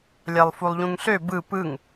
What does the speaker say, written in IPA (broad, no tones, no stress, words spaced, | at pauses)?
lʲælˠfulˠʎũŋɬø bɯ pɯŋ